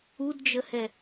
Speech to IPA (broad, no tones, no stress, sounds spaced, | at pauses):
u d d͡ʒ ə h ɛ